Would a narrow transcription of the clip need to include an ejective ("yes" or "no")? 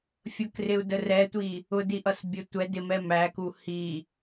no